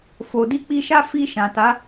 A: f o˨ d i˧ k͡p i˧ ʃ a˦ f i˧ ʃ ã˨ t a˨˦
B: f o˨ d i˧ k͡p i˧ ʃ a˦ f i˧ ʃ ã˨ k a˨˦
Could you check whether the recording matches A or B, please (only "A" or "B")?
A